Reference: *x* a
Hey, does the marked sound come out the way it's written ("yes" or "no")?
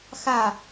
yes